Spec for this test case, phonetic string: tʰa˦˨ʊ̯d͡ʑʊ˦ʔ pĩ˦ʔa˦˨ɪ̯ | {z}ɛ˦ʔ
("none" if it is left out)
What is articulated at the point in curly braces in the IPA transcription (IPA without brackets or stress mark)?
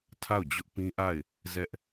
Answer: z